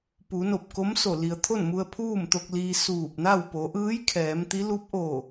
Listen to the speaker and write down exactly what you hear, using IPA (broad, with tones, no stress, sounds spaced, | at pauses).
p u˩˧ n o˧˩ p̚ k o˧˥ m s o˧˩ l i˩ ə̯ t̪ʰ o˥˨ n m u˧ ə̯ pʰ uː˥˨ m t̪ o˧ k̚ l iː˧ s uː˧˩ p̚ n a˥˨ w p o˩˧ ʔ ɯː˧˥ j kʰ ɛː˩˧ m t̪ i˧˥ l u˧˥ p̚ ʔ o˧˩